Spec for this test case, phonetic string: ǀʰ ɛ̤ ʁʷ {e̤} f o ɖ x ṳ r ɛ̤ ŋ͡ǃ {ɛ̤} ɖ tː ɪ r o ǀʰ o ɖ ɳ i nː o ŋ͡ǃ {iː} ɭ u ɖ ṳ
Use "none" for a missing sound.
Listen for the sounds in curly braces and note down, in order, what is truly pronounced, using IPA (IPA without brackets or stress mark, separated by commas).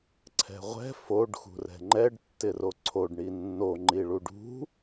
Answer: ɛ̤, ɛ, i